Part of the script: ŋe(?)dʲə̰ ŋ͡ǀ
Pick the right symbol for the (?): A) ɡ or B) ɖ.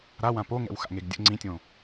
A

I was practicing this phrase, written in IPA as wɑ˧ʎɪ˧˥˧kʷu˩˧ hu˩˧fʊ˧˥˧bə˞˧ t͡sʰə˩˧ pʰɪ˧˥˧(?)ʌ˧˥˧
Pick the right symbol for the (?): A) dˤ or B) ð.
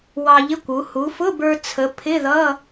B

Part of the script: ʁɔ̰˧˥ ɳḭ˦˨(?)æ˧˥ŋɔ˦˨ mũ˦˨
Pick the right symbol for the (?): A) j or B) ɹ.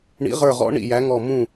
A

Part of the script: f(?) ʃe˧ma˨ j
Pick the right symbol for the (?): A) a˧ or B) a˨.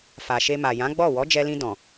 B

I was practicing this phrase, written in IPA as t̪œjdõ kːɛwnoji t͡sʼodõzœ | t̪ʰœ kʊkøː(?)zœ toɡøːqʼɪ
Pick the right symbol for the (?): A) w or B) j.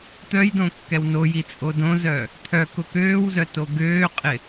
A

